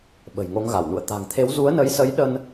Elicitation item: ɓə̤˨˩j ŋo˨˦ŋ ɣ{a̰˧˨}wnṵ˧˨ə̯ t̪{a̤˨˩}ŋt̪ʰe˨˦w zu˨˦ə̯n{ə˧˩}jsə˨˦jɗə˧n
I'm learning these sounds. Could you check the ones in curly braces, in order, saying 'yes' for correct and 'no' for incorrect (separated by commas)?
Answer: no, yes, no